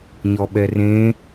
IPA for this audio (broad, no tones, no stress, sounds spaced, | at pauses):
ɲ ɔ ɓ ɛ r ẽ